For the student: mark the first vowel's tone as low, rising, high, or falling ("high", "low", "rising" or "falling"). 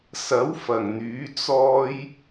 rising